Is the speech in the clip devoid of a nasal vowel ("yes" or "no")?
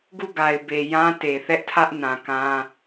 no